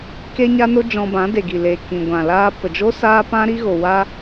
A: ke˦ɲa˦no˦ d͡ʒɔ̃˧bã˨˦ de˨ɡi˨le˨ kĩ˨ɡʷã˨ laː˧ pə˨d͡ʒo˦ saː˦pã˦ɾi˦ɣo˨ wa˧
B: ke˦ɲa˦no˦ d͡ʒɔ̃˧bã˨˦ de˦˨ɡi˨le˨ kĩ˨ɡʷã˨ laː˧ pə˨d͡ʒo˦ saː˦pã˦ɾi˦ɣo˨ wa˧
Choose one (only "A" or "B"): A